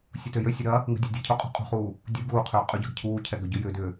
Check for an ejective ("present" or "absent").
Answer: present